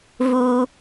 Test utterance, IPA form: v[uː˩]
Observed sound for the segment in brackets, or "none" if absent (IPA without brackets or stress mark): uː˩